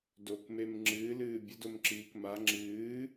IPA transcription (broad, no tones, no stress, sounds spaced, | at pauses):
d o k m e m ŋ͡ǁ ɨː l ɨː bʲ ə d o m ǁ iː k m a ŋ͡ǁ ɨː